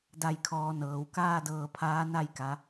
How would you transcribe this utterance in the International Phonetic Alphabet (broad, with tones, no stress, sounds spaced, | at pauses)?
d a˧˩ j kʰ ɔː˩˧ n ɤː˩ w k aː˥˨ d ɤː˧˩ pʰ aː˧˥ n a˥˨ j k a˩˧